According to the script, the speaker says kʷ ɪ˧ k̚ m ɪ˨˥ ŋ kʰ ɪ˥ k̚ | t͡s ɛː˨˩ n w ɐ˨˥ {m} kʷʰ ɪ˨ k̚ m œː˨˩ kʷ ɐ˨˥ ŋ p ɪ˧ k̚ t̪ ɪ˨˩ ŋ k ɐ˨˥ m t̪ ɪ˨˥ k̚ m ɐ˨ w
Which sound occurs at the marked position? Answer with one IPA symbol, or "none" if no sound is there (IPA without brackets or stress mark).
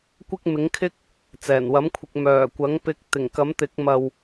m